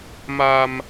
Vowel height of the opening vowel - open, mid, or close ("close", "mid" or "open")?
open